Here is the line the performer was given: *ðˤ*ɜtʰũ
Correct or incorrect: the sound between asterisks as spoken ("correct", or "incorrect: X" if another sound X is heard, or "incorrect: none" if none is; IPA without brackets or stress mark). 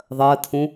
correct